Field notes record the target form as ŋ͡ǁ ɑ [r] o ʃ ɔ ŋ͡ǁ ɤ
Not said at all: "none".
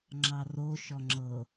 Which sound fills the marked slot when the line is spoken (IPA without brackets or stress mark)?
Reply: r